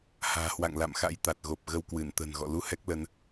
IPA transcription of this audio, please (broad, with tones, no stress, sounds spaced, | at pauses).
h a̤ː˨˩ h w a̰˧˨ ŋ l a̰˧˨ m x a̰˧˥ j t̪ a˨˩ t̚ ɣ o˨˩ p̚ ɣ ə˧ w k w ɨ˧˩ n t̪ ə̤˨˩ n ɣ ɔ̰˧˨ l u˧ h ɛ˦˥ k̚ l ə˧ n